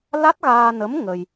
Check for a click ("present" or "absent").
absent